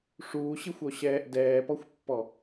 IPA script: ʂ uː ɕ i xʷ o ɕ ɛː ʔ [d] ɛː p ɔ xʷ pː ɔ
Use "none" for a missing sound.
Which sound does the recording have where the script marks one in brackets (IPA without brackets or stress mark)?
d